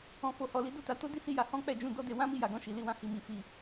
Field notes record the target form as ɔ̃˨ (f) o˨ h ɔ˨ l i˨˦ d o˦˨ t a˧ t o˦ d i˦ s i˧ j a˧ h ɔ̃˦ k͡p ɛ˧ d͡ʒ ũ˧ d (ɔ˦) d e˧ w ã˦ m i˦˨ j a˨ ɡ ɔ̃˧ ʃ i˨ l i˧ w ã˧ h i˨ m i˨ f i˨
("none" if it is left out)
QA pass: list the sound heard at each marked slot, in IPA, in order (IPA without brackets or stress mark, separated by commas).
f, ɔ˦